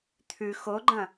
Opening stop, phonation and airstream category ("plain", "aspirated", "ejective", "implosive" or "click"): aspirated